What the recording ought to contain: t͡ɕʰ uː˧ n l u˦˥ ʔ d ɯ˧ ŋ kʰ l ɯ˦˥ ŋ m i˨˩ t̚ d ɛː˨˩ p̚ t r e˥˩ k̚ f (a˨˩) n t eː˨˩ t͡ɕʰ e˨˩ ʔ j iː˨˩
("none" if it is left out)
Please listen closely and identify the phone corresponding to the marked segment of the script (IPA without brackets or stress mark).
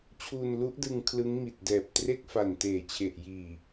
a˨˩